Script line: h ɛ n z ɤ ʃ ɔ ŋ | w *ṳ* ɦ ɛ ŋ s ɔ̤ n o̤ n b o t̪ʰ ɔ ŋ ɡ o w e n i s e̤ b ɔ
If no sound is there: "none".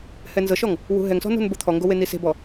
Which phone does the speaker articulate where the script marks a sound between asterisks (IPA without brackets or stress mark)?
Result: ṳ